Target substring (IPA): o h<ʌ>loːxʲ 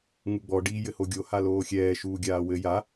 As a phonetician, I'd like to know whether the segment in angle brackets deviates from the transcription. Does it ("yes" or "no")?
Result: yes